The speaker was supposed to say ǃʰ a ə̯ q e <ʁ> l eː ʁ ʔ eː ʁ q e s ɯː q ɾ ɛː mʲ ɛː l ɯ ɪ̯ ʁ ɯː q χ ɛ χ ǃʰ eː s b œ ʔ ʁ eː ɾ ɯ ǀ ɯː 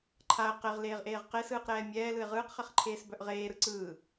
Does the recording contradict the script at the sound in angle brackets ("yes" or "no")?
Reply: no